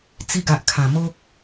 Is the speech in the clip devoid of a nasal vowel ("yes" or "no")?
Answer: no